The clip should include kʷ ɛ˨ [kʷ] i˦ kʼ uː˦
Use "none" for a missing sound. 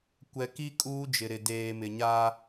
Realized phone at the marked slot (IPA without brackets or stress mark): k